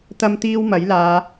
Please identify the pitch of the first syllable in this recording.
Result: high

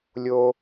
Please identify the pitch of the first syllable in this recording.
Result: high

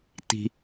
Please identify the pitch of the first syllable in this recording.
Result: low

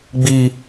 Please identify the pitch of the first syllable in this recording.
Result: high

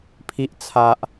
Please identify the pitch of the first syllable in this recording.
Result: low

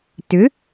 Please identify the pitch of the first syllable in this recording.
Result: rising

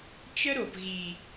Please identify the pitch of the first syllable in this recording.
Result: high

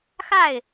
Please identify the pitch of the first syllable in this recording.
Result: falling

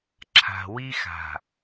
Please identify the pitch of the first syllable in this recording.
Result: low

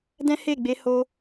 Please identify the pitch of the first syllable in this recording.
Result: high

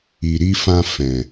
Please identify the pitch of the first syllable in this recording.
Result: low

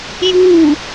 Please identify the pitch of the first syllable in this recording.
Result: falling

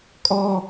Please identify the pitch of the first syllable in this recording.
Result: high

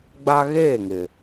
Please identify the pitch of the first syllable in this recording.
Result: high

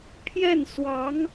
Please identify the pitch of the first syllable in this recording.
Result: falling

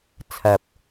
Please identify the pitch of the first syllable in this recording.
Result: low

